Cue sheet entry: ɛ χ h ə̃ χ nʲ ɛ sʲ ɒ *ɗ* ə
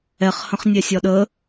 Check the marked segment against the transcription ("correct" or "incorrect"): correct